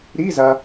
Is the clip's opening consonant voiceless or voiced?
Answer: voiced